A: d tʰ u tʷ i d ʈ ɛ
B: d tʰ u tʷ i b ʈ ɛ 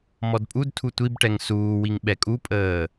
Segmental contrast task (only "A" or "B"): B